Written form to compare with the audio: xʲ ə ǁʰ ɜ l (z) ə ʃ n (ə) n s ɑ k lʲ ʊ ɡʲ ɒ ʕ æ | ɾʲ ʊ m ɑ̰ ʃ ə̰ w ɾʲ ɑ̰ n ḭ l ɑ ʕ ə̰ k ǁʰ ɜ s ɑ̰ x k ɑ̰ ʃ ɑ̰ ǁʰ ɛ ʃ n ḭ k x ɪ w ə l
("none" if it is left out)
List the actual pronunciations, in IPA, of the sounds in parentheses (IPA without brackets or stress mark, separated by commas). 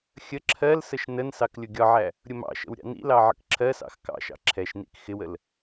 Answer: s, ə